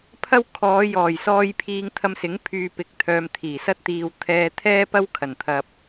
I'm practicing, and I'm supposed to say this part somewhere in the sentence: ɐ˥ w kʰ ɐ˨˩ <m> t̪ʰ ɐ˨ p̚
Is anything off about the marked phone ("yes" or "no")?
yes